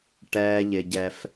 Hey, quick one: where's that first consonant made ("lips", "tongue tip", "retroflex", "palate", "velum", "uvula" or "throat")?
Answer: retroflex